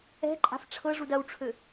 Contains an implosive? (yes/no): no